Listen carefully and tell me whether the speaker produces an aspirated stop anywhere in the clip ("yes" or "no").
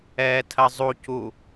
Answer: yes